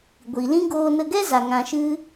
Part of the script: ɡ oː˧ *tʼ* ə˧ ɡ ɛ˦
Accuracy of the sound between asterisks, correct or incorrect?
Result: incorrect